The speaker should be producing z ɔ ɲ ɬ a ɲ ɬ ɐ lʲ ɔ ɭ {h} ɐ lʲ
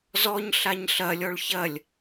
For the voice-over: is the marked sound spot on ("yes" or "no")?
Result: no